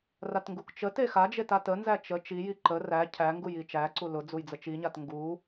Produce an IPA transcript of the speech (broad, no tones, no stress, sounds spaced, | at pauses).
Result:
r a t ŋ ɡ u k t͡ʃ ə t e x a d͡ʒ e t a t ə n z æ t͡ʃ ə t͡ʃ i j i ǃ ə r æ cʰ æ ŋ ɡ u j i t͡ʃ æ ǀ u l ʊ d͡z u j d͡z ə t͡ʃ i ɲ a t ŋ ɡ u